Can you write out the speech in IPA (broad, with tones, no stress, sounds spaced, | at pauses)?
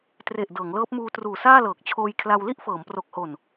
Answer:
t r e˨˩ ʔ d ɤː˩˦ ŋ l ɤː˦˥ p̚ m uː˧ t r uː˨˩ s aː˥˩ l ɤː˨˩ k̚ t͡ɕʰ oː˧ j kʰ l a˧ w l i˥˩ ʔ f ɤː˩˦ m p r o˨˩ k̚ h o˨˩ n